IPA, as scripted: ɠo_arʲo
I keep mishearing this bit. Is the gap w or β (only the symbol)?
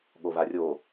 β